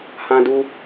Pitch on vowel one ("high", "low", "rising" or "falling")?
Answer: high